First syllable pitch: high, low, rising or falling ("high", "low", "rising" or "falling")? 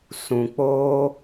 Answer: low